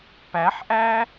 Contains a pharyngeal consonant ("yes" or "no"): yes